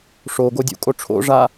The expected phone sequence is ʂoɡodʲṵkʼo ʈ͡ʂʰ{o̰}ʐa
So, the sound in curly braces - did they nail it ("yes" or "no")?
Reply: yes